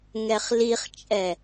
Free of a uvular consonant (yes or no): no